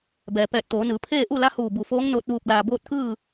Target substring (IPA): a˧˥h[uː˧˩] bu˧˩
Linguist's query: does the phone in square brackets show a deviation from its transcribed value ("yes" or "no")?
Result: no